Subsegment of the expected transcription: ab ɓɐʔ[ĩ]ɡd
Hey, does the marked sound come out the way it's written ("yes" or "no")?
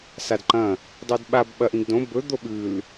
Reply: yes